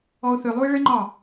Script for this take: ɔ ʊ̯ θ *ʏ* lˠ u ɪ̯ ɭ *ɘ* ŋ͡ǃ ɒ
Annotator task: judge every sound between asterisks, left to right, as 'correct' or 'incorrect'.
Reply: correct, correct

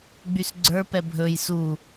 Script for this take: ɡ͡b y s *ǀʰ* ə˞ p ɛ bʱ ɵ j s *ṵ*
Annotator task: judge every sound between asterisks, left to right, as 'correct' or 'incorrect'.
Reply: incorrect, incorrect

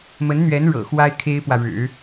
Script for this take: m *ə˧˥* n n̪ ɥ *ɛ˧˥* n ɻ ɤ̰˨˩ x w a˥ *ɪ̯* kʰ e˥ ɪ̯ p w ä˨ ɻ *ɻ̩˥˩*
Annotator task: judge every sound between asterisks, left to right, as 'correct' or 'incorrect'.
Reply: correct, correct, correct, incorrect

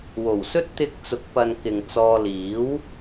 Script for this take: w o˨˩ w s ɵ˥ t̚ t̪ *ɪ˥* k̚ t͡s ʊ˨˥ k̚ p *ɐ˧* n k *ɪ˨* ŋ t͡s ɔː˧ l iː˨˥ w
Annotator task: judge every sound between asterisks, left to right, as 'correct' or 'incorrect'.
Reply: incorrect, correct, correct

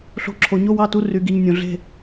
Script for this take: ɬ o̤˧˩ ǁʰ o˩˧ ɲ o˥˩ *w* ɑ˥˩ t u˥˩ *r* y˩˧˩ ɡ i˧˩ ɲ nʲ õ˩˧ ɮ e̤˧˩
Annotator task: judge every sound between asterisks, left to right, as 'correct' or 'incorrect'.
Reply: correct, correct

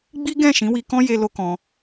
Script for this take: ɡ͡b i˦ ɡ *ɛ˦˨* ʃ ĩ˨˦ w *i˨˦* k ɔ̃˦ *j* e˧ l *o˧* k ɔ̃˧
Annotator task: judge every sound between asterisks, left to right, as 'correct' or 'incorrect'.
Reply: incorrect, incorrect, correct, correct

